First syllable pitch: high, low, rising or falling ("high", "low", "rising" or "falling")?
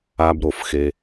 low